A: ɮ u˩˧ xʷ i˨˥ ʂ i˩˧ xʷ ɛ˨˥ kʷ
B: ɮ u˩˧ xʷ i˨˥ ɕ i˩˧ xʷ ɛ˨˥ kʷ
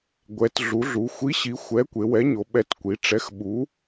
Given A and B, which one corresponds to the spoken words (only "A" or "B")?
B